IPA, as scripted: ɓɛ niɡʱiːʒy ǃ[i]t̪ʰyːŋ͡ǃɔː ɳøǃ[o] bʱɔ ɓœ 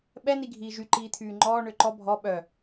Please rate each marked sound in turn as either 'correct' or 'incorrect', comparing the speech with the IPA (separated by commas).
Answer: incorrect, incorrect